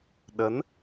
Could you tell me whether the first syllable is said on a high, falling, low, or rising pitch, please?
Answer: rising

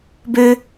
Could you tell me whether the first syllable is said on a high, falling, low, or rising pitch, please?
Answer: high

